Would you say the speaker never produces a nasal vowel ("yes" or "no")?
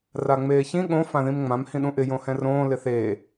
no